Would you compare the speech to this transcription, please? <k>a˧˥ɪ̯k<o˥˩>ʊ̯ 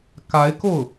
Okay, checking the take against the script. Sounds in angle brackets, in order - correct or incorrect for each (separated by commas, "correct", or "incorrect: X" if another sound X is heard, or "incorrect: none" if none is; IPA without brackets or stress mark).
correct, correct